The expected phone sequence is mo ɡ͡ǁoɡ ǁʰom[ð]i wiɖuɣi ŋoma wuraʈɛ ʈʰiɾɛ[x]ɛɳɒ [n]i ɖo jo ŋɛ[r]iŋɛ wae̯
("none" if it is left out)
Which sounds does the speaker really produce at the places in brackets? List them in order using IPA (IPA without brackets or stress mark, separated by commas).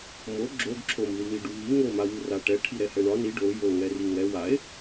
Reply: ð, h, n, r